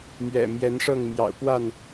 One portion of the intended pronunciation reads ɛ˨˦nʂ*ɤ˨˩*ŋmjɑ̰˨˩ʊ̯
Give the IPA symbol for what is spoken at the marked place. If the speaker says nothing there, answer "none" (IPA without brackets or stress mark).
ɤ˥˨